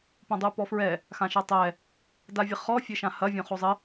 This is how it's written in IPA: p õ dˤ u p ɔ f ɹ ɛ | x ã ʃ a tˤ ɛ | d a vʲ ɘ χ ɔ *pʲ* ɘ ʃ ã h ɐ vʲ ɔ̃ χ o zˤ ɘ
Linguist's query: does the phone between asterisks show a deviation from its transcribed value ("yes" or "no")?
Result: yes